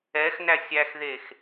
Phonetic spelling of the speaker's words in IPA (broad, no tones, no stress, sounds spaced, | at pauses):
ɛ x n æ sʲ æ x ð e x